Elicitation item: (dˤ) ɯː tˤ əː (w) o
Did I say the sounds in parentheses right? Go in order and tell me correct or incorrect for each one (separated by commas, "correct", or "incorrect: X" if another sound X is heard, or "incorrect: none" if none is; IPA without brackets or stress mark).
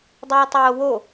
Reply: correct, correct